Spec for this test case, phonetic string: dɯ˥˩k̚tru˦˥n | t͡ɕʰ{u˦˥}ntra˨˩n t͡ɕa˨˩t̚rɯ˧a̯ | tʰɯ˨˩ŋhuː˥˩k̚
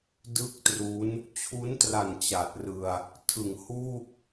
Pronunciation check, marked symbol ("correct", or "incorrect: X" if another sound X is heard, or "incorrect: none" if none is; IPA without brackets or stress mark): correct